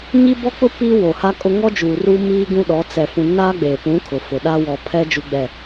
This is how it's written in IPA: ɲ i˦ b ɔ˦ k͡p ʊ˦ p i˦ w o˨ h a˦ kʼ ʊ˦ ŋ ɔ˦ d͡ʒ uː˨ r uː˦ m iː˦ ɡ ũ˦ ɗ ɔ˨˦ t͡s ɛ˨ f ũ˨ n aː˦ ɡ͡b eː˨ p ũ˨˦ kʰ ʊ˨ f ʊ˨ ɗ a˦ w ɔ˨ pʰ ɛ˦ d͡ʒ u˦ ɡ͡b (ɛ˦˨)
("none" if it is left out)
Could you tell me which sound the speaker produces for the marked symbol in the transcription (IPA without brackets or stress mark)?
ɛ˦˨